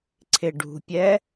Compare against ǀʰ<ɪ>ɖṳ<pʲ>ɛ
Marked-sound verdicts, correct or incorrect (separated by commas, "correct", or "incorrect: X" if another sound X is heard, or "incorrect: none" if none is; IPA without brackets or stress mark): correct, correct